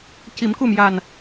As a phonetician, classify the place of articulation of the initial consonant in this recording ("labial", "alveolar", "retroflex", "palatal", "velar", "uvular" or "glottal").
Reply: palatal